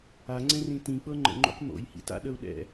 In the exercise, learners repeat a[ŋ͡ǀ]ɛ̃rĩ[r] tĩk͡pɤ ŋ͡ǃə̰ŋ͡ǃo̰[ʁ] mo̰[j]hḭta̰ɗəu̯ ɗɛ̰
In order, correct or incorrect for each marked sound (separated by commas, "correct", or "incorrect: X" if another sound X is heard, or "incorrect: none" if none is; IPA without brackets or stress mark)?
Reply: correct, incorrect: none, incorrect: q, correct